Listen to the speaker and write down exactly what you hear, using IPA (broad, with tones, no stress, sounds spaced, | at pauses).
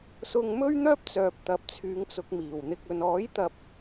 s ʊ˧ ŋ m ɵ˥ ɥ n̪ œː˥ p̚ t͡s œː˨ p̚ t̪ ɐ˨˥ p̚ t͡sʰ yː˨˧ ŋ t͡s ʊ˨˥ k̚ m iː˨˩ w n̪ ɪ˧ k̚ ɵ˧ n ɔː˨˥ j t̪ ɐ˨ p̚